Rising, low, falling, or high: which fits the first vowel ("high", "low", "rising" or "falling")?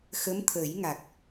rising